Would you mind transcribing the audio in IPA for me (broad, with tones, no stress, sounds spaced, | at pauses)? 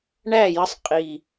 ɳ æ˥˨ j ə˧˥ sˤ qʼ i˨˩